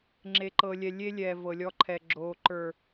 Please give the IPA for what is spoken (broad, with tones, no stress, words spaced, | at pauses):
ŋ͡ǁe˨ǃɤː˨lʲɛ˨ lʲe˦ lʲɛː˨vɤ˨lʲɔ˧ǃʰɛ˨ ɡ͡ǁoː˨ ǃə˞˨